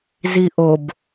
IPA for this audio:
z i ʔ o b

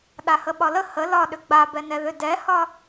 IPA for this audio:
ɗ a h ə ɓ ɒ l ə h ə l ɒ ɗ ʏ ɡ͡b a b ɛ n ɛ ð ʏ d ɛ h ɒ

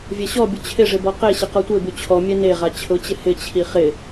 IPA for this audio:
vʲ ɛ ɕ ɔ bʲ ʊ t͡ɕʰ ɪ ʐ ɪ b ɔ q e ɕ ɪ q ɔ tʷ e b u t͡ɕʰ ɔ mʲ ɛ n e ʁ a t͡ɕʰ ʊ t͡ɕ ɪ h ɪ t͡ɕʰ i χ ɪ

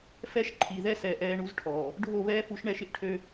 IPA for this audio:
f ɛ˦ ʃ ǃʰ i˨ ð ɛ˦ s ɛː˨ ʔ ɛː˦ ɳ u˦ z ʈʰ ɔː˨ | ɖʱ o˦˨ β ɛː˦ f u˨˦ ʃ ɳ ɛ˦ ʃ ɪ˦ ʔ ʈʰ ø˦

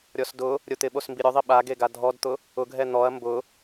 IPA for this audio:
ɾʲ ɔ s d ʊ | ɾʲ o t̪ ɪ ɓ o s m b i ɾʲ ʊ ðˤ i ɓ a ɡ e ɡ a dʱ ɔ d t̪ ʊ | ʊ ɡʱ ɛ n̪ ɔ ɐ̯ m b ʊ

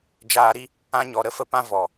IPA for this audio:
d͡ʒ aː˧ ɾ i˦ | ã˧ ɲ ɔ˨ ɾ ə˦ f ə˧ p ã˦ v ɔ˨

